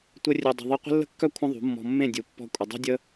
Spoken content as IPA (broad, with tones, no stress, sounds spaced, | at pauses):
tʷ ə˦ rʲ ø˧ dˤ ə̤˧ ðˤ ɨ˧ qʷ ə̤˦ lː ə̤˦ kː œ˦ kʷʰ ə̃˦ ðˤ ṳ˨˦ mː ɔ̤˧ mː ẽ˦˨ dʲ u˨ pː ɔ̤˦ kʷʼ ə˧ dˤ e̤˦ dʲ ə˦